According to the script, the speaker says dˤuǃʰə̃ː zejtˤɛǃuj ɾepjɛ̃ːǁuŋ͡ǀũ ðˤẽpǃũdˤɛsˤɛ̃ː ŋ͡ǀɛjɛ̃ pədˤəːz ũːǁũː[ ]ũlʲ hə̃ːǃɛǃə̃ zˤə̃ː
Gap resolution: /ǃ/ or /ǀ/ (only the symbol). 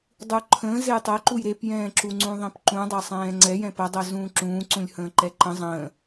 ǀ